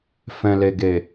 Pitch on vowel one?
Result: low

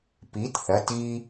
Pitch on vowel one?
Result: rising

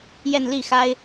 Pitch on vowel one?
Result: falling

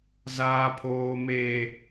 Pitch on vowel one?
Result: low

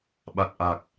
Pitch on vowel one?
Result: low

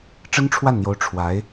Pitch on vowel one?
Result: high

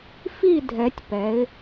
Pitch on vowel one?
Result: falling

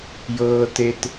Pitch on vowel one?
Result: low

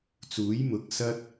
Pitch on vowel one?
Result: rising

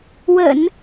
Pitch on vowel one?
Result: low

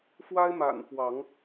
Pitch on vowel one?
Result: high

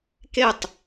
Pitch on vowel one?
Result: falling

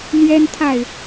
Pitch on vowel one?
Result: high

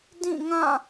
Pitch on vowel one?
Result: falling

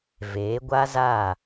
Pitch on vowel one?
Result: rising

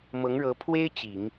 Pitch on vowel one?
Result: rising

